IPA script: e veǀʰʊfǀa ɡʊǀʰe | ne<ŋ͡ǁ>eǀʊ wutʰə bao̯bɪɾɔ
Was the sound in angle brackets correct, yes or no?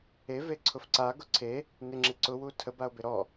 yes